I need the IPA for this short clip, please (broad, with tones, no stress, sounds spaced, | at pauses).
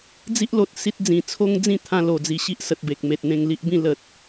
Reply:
d͡z i˦ ʔ l o˨ t̚ s i˦ t̚ d͡z ĩ˨˩ t͡sʰ o˦ ŋ d͡z ĩ˥˧ t̪ʰ ã˧ l o˨˩ d͡z i˨˩ ɕ i˦ ʔ s ə˨ t̚ b e˨ k̚ m e˨ t̚ n̪ ẽ˧ ŋ l i˦ ʔ b ĩ˥˧ l ə˨ t̚